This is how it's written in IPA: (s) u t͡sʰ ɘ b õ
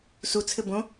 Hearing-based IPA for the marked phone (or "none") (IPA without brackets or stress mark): s